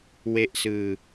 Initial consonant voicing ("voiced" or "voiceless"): voiced